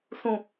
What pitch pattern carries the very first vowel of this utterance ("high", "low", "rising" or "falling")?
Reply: low